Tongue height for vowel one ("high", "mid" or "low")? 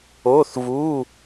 mid